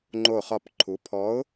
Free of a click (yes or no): no